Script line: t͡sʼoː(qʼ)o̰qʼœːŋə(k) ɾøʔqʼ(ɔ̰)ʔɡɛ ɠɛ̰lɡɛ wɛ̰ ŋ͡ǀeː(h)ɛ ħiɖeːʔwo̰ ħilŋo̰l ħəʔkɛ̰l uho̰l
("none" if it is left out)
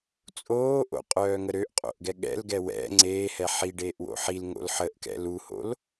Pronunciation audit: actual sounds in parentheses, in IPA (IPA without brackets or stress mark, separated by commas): ʔ, none, o̰, h